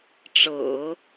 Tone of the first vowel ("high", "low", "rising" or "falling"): low